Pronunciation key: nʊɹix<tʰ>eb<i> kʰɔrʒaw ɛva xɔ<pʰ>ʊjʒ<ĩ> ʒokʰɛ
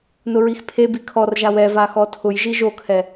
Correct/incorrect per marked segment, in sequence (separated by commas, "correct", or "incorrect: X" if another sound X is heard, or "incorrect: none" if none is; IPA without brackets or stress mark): incorrect: pʰ, correct, incorrect: tʰ, incorrect: i